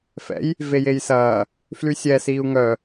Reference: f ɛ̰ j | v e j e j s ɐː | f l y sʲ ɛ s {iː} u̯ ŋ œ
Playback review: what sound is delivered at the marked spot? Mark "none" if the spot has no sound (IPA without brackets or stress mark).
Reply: iː